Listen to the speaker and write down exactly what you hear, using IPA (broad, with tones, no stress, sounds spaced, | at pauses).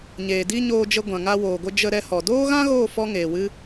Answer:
ɲ eː˨ d i˦ ɲ oː˧ d͡ʒ ə˧ ɡʷ ã˨ ŋ a˧ w oː˨ ɡʷ ə˧ d͡ʒ ə˧ ɾ ɛ˧ h ɔ˨ d oː˦ ɣ ã˦ ɣ oː˦˨ f ɔ˦ ŋ eː˨ w ɨ˦